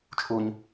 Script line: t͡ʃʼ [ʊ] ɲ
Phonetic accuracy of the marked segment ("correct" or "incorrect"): incorrect